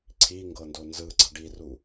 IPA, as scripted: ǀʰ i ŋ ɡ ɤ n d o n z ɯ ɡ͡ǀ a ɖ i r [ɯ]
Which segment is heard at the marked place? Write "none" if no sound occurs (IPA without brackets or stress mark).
u